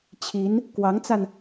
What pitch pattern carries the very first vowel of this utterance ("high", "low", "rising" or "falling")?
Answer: rising